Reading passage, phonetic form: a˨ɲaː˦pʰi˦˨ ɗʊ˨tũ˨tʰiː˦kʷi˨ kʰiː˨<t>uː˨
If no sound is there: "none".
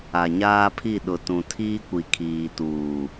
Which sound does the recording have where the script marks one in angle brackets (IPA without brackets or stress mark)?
t